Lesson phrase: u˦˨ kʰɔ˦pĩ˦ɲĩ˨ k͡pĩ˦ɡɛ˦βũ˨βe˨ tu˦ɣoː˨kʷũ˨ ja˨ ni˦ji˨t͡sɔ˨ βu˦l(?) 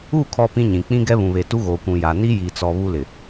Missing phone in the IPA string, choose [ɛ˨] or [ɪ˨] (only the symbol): ɪ˨